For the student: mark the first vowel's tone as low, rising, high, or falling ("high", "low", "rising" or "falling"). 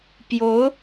rising